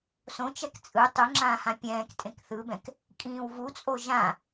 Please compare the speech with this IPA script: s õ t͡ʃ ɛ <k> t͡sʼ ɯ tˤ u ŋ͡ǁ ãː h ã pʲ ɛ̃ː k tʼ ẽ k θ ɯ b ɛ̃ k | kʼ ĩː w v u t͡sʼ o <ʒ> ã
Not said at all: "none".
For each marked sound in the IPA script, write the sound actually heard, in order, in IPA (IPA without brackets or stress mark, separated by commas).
k, ʒ